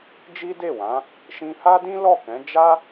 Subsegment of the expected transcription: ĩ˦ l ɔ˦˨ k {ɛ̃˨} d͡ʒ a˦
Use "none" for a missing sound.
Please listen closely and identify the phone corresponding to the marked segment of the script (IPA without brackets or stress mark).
ɛ̃˨˦